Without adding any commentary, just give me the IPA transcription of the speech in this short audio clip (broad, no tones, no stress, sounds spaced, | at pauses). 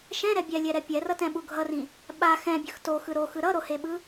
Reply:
ʃ ɛ̃ ɾ ɛ bʲ ɛ lʲ ɛ ɾ ɛ pʲ ɛ r ʌ t ɛ̃ ɓ u ɡʱ ʌ r ĩ | ɓ a x ɛ̃ bʲ ɯ x t o x ɯ ɾ o x ɯ ɾ ʌ ɾ o h e ɓ ɯ